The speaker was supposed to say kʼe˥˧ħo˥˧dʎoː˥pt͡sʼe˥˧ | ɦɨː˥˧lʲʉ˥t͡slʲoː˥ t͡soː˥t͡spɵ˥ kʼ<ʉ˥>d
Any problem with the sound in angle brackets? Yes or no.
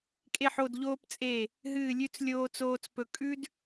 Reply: no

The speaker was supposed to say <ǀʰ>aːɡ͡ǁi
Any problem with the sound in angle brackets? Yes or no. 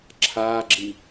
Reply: yes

